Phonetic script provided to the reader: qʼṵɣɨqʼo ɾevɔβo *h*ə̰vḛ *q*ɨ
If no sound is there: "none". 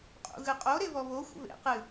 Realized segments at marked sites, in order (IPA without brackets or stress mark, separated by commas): xʷ, q